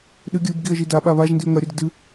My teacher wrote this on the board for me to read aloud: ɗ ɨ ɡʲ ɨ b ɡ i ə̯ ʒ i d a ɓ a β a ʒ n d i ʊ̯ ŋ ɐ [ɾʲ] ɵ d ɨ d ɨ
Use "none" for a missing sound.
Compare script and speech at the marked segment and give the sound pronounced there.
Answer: ɾʲ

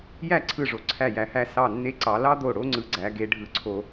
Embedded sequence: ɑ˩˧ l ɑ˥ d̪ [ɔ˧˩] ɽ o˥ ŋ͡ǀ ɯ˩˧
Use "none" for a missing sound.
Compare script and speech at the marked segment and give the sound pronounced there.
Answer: o˧˩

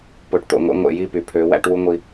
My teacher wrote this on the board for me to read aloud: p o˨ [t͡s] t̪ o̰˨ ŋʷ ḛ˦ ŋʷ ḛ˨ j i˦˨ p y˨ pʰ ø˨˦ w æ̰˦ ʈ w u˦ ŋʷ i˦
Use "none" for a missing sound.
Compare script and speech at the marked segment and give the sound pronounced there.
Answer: ʈ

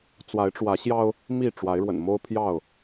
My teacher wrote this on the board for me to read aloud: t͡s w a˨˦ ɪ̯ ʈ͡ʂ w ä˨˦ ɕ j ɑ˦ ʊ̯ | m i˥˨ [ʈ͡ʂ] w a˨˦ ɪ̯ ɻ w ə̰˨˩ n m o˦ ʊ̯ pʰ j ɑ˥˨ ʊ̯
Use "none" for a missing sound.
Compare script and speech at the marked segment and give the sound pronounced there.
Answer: ʈ͡ʂ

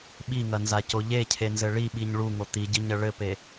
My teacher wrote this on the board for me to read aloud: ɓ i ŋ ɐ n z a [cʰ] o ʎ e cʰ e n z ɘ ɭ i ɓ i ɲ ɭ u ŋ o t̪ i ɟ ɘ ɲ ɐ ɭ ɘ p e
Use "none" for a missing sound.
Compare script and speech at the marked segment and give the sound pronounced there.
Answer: c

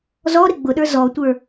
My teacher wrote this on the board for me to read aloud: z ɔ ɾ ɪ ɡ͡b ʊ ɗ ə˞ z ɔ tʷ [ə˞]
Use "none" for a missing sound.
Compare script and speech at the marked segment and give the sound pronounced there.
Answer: ə˞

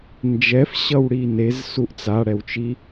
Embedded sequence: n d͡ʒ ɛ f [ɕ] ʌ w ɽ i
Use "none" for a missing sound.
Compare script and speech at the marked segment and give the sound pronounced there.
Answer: ɕ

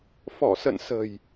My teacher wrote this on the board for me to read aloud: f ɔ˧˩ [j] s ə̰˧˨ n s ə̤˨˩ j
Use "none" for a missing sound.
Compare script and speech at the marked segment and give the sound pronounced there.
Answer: none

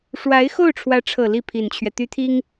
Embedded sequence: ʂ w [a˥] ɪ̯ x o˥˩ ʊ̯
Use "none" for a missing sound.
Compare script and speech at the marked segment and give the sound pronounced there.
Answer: a˧˥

